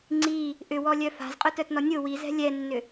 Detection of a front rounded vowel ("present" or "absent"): present